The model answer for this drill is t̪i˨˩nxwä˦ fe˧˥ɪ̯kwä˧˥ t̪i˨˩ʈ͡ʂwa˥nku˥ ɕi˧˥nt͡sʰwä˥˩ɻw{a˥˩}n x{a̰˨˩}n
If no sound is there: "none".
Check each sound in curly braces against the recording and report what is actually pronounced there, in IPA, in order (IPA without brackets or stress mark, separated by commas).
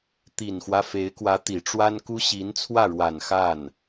a˨˩, a˥˩